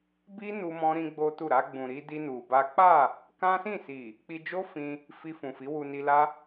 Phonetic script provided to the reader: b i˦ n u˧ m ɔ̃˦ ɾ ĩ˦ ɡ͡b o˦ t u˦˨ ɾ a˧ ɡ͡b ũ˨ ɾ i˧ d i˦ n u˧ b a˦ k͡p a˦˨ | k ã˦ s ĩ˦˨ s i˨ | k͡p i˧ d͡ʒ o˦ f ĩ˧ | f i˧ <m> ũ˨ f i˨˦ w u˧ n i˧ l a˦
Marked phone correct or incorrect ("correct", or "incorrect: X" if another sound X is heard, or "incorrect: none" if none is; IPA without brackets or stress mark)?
incorrect: f